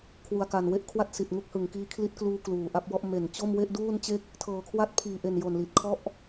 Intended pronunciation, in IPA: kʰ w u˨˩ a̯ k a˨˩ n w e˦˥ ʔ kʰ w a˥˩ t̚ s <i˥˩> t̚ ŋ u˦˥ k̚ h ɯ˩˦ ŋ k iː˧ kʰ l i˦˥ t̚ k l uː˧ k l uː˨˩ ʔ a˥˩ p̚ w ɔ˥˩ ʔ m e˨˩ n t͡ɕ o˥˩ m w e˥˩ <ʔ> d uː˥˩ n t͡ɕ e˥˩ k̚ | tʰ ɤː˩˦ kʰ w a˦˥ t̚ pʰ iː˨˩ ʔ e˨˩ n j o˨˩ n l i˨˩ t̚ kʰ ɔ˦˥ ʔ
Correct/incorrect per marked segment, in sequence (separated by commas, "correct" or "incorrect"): incorrect, correct